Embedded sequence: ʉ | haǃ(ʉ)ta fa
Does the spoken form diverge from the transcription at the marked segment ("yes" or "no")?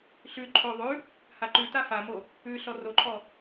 no